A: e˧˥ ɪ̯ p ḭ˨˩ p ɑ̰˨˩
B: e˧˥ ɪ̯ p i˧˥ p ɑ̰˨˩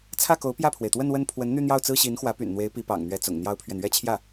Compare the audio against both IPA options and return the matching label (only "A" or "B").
B